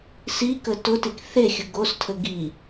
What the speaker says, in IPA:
sikə tʊtik θexʲʊ ɡostʰə ɡi

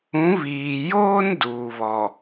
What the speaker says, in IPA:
ũ˨˦βiː˨joː˦n duː˨βɔ˨

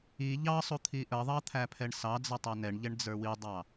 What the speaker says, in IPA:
i ʎɑsˤu t̪ʰiʔəðˤɑ t̪ʰæpʰɛɳsɑd͡zʌ tˤɛnɛɳʎɛɳ d͡zə˞widˤɑ

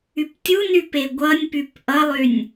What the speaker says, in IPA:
yptʲuny peɡʷʌnʲpyp ʔʌlˠynʲ

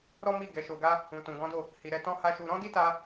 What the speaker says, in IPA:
ɾɔ˦mi˦˨ ɡɛ˨˦ʃo˧ɡa˦ | ũ˨tũ˨ ɡɔ̃˨˦do˦˨ | hi˨ɾɛ˧ tɔ̃˦ha˦ʃu˧ ɾɔ̃˦di˦ta˧

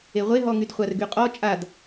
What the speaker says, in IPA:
eʁʷeɦɔŋyd χʷarɡyqʼɔ t͡ʃʼad

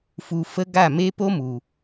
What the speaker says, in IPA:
fu˧fə˦ ɡa˦˨me˦ po˦mu˨

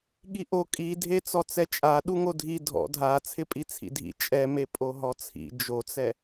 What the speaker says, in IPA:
ɠiʔo kʼidʱet͡sɔ t͡sɛt͡ʃʼa ɗuŋodʱi dʱɔ̰ dʱa t͡sʰɪpʼit͡sʰḭdʱḭ t͡ʃʼɛme pʼoɦɔt͡sʰḭ d͡ʒot͡sɛ

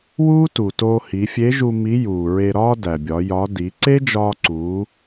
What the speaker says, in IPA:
wuː˥tu˩toː˧ hi˩˧fʲe˧˥ʒu˧ mi˧˥juː˩ɹe˧ɾɒː˥ dæ˩bʲɒ˩˧ jɒ˧˥ di˩˧ǀe˥d͡ʒɒː˧ǀuː˩˧

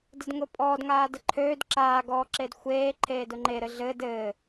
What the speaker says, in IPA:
dədŋʊpʼɔːd ŋaːdəǃʰøːd ǁaː ɡɔːǁedxʷeː ǃʰeːdʊŋ͡ǃe ɾɘɮɘːd ɘː

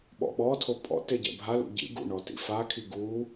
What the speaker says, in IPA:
ɓɔ̰ɓɔtʰo pʼɔ̰ teɟɛ̰bʱalṵ ɟḭ ɡṵɳɔ tḭfakʰi ɡu

